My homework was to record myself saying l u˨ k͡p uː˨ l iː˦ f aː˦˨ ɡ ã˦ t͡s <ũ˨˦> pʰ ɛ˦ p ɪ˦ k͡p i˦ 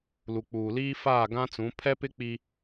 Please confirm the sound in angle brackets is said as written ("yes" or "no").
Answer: yes